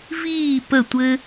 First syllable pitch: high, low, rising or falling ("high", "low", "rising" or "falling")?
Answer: falling